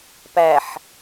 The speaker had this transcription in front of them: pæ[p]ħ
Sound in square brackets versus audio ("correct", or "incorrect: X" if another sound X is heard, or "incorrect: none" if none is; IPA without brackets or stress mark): incorrect: none